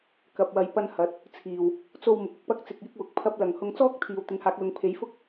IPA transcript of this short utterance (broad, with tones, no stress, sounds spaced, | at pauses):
k ɐ˨ p̚ w ɐ˨˧ j p ɐ˧ n h ɐ˨˥ t̚ | t͡sʰ iː˨˩ w | t͡s o˧ w m ʊ˨ k̚ ʊ˧ k̚ p ɐ˥ k̚ t͡s ɪ˧ k̚ j ɪ˥ k̚ w ʊ˨˥ k̚ pʰ ɐ˥ p̚ l ɐ˨ ŋ h ʊ˧ ŋ t͡s ɔː˥ k̚ t̪ʰ iː˨ w t̪ ɪ˨˥ ŋ h aː˨˥ k̚ l ʊ˨˧ ŋ pʰ e˨˧ j f ʊ˥ k̚